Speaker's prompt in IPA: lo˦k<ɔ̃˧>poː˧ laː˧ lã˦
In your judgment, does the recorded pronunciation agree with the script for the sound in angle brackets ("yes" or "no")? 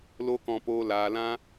yes